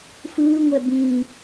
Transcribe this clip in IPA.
fɯːŋʷɛ bĩ

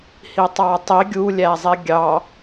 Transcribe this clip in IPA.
hitˤɑtˤi ɡʲu lʲæzˤiɡʲɑ

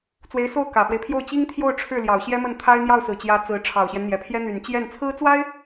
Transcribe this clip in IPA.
t͡swe˧˥ɪ̯so˥˩ʊ̯ kä˨˩fwe˦ɪ̯pʰjo˥˩ʊ̯ t͡ɕi˥ŋt̪ʰjo˥˧ʊ̯ ʈ͡ʂʰɻ̩˥˩ljɑ˨˩ʊ̯ ɕjɛ˥mə˥˩nt̪ʰa˥ɪ̯ n̪jɑ˥˩ʊ̯sɹ̩˨˩t͡ɕjä˧˥ t͡sɹ̩˧˥ ʈ͡ʂʰɑ˨˩ʊ̯ɕjɛ˦nn̪jɛ˨˩pʰjɛ˥ n̪y˨˩nt͡ɕjɛ˥˩n t͡sʰɹ̩˥t͡swa˥ɪ̯

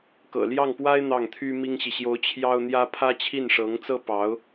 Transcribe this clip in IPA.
kɤ̰˨˩ljɑ˥˩ŋpwa˥ɪ̯ n̪ɑ˥˩ŋt̪ʰy˥ mi˥ŋɕi˨ ɕjo˧˥ʊ̯ t͡ɕʰjɑ˥ʊ̯n̪jä˥ pʰä˥ t͡ɕʰi˥˩nʂɤ˧˥ŋt͡sɤ˥ pɑ˧˥ʊ̯

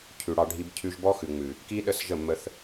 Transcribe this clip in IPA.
cʰʉ˨ɽɑ˧ɖʱi˧b cʰʉ˧ʒbɔ˦xʉ˨ŋ͡mʉ˨ | ki˦ɗə˦˨sʒə˦˨mːə˧θ

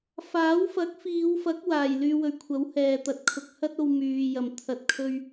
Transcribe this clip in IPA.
faː˨˥wfɐ˨˥k̚fiː˨˧wfɐ˨˥k̚ waː˨˩jlyː˧wɵ˨ɥ kʷʰɐ˨˥whɛː˨ t̪ɐ˨˥t̚kʰʊ˨k̚ hɐ˥t̚o˧w myː˨ jɐ˨˩mt̪ʰɐ˨t̚kʰɵ˧ɥ

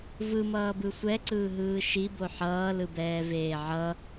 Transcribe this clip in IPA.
vɯmʌːbɯ sʷɛǀɯːɦɯː ʃibo ħʌːlɯbɛːveː ʕʌ

